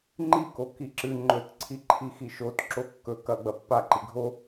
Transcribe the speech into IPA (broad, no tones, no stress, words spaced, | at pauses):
ŋ͡ǃiko kiǁɨ ŋ͡ǃɵt ǀʰiǃʰixiʃot ǁokːɵ kɐɡ͡bɐ pːaǃi ɡʱo